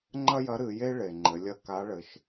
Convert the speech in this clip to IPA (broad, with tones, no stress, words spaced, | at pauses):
ŋ͡ǃɐ˥jɐ˧˥ ɾɨ˩˧je˥ ɭe˩ŋ͡ǃɘ˩˧ lʲɐ˧ ka˧˥ɭɘ˩˧ʃ